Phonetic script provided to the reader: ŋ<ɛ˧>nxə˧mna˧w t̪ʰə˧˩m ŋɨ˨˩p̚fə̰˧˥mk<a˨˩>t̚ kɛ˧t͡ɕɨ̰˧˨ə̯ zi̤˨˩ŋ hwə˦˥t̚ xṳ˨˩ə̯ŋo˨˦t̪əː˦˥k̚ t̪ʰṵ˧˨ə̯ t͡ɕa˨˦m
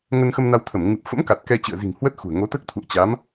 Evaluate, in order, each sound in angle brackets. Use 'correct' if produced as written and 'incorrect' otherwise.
incorrect, correct

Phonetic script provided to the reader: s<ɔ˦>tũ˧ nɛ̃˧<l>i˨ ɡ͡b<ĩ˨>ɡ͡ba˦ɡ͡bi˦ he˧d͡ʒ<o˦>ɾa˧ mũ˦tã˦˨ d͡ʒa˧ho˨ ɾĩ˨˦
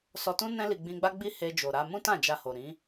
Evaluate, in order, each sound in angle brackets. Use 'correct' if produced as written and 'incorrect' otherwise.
incorrect, correct, incorrect, incorrect

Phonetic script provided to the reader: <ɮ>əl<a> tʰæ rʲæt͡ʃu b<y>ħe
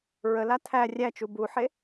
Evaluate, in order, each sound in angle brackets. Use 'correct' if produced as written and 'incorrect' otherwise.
incorrect, correct, incorrect

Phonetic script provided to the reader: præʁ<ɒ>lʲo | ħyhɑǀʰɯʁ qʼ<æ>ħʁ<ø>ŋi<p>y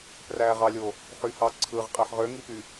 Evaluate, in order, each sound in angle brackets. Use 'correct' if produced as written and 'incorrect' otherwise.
incorrect, correct, correct, correct

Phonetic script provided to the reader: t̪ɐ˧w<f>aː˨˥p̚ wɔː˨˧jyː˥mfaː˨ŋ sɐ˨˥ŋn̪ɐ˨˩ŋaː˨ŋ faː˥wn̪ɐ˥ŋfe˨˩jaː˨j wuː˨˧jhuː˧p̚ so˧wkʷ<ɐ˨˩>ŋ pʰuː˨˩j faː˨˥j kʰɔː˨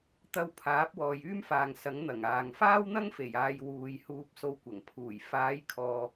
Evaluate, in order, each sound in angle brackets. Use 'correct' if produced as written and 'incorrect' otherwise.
incorrect, correct

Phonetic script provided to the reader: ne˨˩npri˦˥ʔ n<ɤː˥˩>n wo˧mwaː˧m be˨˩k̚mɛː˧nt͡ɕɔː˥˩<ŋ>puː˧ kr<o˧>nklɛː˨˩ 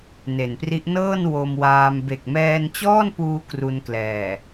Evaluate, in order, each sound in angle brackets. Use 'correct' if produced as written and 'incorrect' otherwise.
correct, incorrect, incorrect

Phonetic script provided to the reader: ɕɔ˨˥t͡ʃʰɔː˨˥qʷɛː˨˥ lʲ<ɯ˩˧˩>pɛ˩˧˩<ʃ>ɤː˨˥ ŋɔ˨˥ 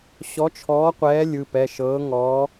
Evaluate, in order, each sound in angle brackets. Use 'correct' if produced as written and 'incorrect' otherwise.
correct, correct

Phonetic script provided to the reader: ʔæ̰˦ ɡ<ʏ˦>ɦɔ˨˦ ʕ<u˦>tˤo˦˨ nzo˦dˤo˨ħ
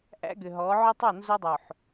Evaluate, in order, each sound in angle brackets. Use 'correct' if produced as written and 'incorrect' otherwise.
incorrect, incorrect

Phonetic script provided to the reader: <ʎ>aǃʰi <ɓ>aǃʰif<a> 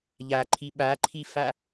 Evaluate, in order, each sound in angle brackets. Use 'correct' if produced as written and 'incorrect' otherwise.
correct, correct, correct

